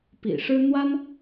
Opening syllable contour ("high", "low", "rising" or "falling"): low